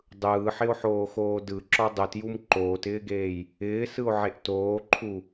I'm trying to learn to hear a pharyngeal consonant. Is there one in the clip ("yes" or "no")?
yes